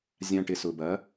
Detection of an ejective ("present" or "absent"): absent